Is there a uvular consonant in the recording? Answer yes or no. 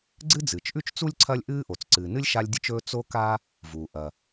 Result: no